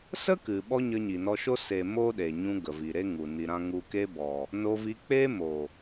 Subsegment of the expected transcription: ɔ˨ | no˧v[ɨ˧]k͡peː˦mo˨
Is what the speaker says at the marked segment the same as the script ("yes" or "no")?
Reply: no